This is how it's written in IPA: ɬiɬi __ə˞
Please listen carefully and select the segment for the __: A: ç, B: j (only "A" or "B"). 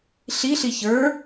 A